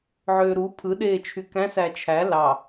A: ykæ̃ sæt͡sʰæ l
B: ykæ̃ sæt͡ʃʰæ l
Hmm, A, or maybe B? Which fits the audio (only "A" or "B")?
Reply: B